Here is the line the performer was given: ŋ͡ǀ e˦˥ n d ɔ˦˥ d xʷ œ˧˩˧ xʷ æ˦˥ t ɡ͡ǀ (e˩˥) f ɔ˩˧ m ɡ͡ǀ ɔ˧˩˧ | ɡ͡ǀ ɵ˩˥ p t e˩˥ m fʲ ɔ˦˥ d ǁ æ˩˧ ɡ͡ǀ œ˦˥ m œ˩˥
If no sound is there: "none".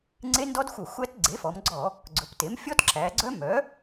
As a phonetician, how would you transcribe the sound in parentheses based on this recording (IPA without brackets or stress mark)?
e˩˥